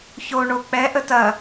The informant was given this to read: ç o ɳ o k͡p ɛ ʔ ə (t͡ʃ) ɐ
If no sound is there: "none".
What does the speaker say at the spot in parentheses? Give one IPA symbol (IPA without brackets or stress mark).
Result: t